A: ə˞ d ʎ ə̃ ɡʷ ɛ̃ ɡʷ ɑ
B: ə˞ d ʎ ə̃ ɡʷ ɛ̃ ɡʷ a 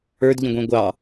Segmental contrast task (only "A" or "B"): A